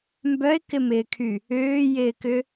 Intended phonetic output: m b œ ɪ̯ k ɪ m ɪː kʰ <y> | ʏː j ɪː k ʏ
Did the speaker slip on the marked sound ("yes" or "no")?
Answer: no